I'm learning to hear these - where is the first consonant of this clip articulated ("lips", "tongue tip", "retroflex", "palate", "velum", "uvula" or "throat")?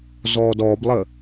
tongue tip